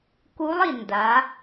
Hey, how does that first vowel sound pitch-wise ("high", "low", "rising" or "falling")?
rising